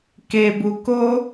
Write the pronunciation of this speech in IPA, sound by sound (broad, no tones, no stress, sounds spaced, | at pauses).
k e b u k o